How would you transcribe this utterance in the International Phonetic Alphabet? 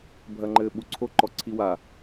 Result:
bʱ ɐ ŋ͡ǃ ɘː ɓ u ǀʰ o ǃ ɔ ǀʰ i w a

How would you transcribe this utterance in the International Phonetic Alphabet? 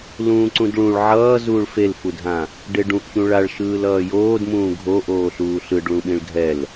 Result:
l ũː ǀ ũ d ɭ ũ ɭ ʕ ʌː z uː ɭ f e l f u dʱ ã | ɖ e ɖ ũ ʔ ç ũ ɭ a ɭ ʃ ɯː l ʌː j oː d m ũː ɡʱ o ʔ oː ɬ uː ɬ ɯ ɖ ɭ ũ ɓ ĩ ɭ ɡʱ ɛ l

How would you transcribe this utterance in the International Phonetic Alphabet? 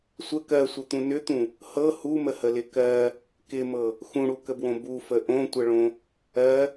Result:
sʷ ə k ɜ sʷ ə t̪ ũ n ʏ t̪ ũ | h ɤ h u m ə h ə l ɪ k ɜ | k ɪ m ɤ | x ũ ɽ u k ə b w õ b u f ə ʔ õ tʷ ə ɭ õ | ɜ

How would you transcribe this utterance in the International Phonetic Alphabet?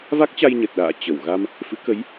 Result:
v a˦˥ k̚ t͡ɕ a˧ j ɲ ə˨˩ t̚ ɗ a̰ː˧˨ t͡ɕ ə˧˩ w ɣ a˧ m | f ɨ̰˧˥ k ə˨˦ j

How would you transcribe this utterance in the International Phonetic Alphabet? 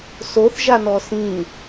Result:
s o θ ʒ a n ɔ s ĩ

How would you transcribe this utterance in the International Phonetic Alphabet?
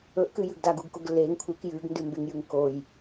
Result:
ɵ ʔ k ɨ j ʉ ɡ d a ɡ u ɡ k o ɡ lː e ŋ kʷʰ ɨ k j ʉ ɡ n d ʉ m b e ŋ j ʉ ŋ k o j

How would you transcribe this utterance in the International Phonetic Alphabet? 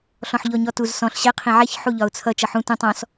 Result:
ɬ ɔ̃ ħ ʎ ɔ ɲ ɔ t u z s ɔ̃ ɬ ɕ ɛ qʰ ĩ ʕ ɛ ç ħ u ʎ ɒ ʊ̯ t͡sʰ ʌ t͡ʃ ʌ ħ ũ t ũ tˤ ɔ̃ s

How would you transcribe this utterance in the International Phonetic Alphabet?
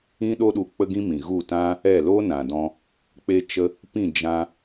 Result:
ĩ˦ ɗ o˦ ɗ u˧ k͡p ə˦ ɡ ĩ˦ m ĩ˨ ɣ u˦˨ t ã˦ | ɛ˦˨ l oː˦ n ã˨ d ɔ̃˧ | k͡p e˧ t͡ʃ ə˧ | p ĩ˦˨ d͡ʒ ã˧

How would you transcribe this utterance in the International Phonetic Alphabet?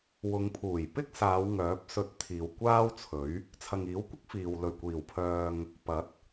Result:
w ʊ˨˧ ŋ pʰ uː˨˩ j p ɪ˥ k̚ s aː˨˧ w ŋ œː˨˥ p̚ s ɵ˧ t̚ t̪ʰ iː˨ w kʷ aː˥ w t͡sʰ ɵ˨˥ ɥ | t͡sʰ ɐ˨ ŋ iː˨˥ w kʷ ɪ˥ k̚ f iː˨ w l ɵ˨˩ ɥ kʷ iː˨˩ w pʰ œː˨ ŋ | p ɐ˨˥ t̚

